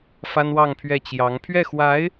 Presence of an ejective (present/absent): absent